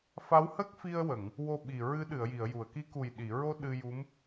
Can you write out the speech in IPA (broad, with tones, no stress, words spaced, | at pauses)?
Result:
fa˧˥whə˦˥k̚fi˧ə̯wə˨˩˨ŋ | wo˧ɓi˨˩ɹɨ˧˥ ɗɨ˨˩˨ə̯ji˨˩˨ə̯ju˨˩˨ə̯ki˧˥ ku˨˩jɗi˨˩˨ɹo˧ ɗɨ˧ju˧˥m